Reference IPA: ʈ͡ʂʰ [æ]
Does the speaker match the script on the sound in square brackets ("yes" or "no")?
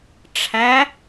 yes